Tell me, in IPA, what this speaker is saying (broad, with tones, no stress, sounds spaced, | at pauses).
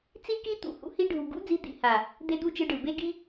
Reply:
t͡s i˦ k i˦ t̪ ṵ˧ h ṵ˦ h i˧ ɖʱ u˨ ɡ ṵ˦ d͡z i˧ d̪ ḭ˦˨ h a˨ | d̪ e˦ d̪ u˦ t͡ʃ ɯ˧ ɖ ɯ˨ b e˦ ɡ i˦